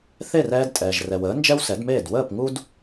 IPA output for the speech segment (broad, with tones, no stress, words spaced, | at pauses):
θe˥˩rɛː˧d tʼɛː˩ʒrɛ˩wəː˩˥ nd͡ʒɛ˥wsɛ˩˥dmeː˥˩d wəː˥˩p ŋu˥d